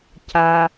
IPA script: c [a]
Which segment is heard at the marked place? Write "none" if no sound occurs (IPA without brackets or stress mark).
a